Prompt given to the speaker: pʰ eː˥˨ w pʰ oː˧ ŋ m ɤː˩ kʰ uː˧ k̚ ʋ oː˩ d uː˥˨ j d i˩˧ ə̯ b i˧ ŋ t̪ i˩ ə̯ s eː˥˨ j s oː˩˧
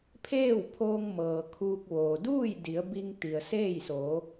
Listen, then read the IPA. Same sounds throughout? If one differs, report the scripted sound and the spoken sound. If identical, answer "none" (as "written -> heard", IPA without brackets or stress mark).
none